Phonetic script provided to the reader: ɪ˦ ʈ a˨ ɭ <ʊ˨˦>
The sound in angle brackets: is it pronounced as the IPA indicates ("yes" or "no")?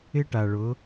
yes